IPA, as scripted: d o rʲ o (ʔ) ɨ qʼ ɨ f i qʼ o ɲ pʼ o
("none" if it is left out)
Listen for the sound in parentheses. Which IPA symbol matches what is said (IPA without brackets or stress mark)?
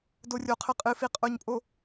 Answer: qʰ